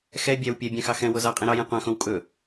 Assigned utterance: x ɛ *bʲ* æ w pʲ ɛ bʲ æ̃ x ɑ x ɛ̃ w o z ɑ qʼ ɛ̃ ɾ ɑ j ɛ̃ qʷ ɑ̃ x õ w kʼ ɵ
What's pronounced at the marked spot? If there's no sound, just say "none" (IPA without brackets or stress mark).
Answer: bʲ